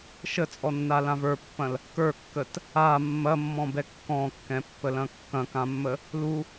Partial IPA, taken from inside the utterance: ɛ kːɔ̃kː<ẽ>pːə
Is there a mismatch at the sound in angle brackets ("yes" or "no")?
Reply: yes